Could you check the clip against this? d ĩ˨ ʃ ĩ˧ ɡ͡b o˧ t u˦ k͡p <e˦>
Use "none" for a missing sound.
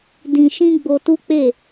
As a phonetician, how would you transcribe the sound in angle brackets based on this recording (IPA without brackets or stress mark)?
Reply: e˦˨